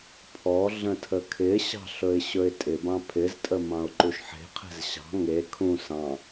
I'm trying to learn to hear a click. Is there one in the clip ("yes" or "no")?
yes